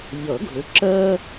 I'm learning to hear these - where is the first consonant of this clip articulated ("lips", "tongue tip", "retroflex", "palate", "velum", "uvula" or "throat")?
palate